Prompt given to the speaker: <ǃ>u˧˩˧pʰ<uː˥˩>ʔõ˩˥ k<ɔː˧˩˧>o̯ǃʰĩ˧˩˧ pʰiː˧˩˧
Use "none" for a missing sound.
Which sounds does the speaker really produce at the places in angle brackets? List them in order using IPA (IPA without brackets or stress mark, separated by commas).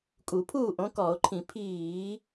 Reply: kʼ, uː˥˩, ɔː˧˩˧